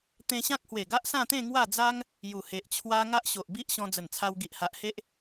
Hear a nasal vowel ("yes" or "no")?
yes